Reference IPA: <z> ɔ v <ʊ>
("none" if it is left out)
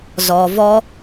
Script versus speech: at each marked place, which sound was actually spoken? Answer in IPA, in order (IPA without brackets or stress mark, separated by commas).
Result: z, ɔ